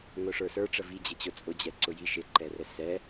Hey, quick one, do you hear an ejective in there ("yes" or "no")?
yes